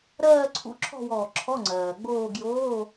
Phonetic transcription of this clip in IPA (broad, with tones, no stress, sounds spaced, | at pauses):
ɾ ɜː˥˧ ǀʰ ṵ˧˥˧ ǁʰ ɔ̤˥˧ w ɔː˧˩ ǁʰ ɔ˧˥˧ ŋ͡ǀ ɜː˩ ɡ͡b oː˥˧ ɡ j oː˧˥˧